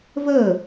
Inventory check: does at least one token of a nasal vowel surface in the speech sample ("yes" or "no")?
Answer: no